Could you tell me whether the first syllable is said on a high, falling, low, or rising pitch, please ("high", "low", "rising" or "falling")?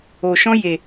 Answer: low